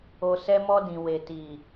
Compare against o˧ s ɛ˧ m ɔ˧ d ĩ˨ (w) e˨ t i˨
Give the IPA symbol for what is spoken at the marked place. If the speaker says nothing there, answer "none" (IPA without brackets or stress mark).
w